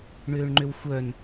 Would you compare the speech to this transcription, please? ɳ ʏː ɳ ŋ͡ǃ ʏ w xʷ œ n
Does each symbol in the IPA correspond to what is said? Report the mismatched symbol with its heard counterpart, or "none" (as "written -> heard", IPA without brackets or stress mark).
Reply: none